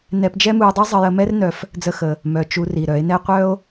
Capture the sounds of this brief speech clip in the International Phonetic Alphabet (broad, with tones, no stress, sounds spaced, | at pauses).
n ɛ˧ p d͡ʒ ɛ˦ m u˧ j dˤ ɛ˦ zˤ ə˧ j ə˧ m ɛ˦ r n œ˦ f | d͡z ə˦ x ə˧ | m œ˨ t͡ʃ u˧ r i˨ ɾ œ˨˦ e̯ n ɛ˦ qʷ œ˦ o̯